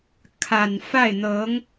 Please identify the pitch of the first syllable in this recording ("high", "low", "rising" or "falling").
low